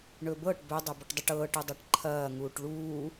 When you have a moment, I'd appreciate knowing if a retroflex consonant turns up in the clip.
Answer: yes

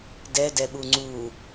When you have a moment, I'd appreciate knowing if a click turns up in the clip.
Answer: yes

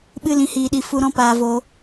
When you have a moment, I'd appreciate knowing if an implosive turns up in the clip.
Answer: yes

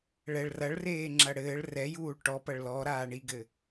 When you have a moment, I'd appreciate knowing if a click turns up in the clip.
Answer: yes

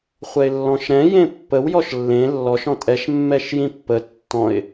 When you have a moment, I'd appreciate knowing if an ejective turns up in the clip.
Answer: yes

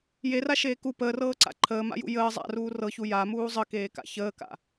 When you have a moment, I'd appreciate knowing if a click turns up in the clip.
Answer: yes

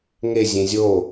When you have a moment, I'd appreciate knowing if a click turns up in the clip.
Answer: no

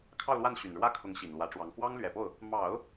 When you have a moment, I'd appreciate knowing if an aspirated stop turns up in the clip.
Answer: yes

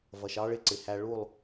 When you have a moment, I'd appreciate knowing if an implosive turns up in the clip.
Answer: no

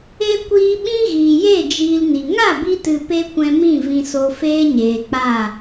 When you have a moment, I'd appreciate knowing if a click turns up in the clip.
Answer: no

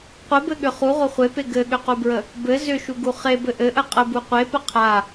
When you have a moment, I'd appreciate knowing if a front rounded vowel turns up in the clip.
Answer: yes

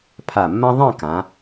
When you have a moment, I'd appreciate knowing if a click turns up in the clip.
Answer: no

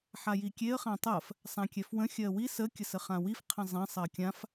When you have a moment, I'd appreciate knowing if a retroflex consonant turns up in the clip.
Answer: no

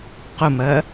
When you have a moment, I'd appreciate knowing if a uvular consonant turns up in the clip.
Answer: yes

